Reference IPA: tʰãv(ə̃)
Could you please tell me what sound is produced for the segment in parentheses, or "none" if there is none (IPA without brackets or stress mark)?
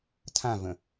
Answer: ə̃